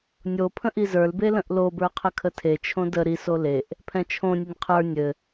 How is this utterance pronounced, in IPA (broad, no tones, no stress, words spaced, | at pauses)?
nʲo pʰə̃ʔizə˞lbe lə̃ʔlobə˞ qʰəkʰətʰet͡ʃʰõ də ɾiso leʔ | pʰɛ̃t͡ʃʰõnʲɘnʲ qʰə˞ nʲɘ